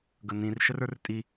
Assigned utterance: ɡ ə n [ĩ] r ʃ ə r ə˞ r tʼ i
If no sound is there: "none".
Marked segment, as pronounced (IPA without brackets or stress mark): ĩ